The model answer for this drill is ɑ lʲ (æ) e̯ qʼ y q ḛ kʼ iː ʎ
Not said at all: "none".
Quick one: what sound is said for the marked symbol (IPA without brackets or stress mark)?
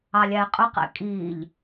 æ